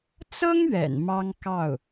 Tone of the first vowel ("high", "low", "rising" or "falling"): high